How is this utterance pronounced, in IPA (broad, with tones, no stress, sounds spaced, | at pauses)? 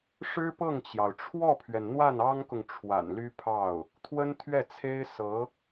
ʂ ɻ̩˥ p ɤ˥˩ ŋ t͡ɕ j ɑ˩ ʊ̯ ʈ͡ʂʰ w ɔ˥˩ pʰ ɥ ɛ˩ n n̪ w a˥˩ n ɑ˥ ŋ k ʊ˨ ŋ ʈ͡ʂʰ w a̰˨˩ n l y˥ pʰ ɑ˥˩ ʊ̯ | t̪ʰ w ə˥ n t̪ʰ ɥ ɛ˥˩ t͡sʰ e˥ ɪ̯ s ɤ˧˥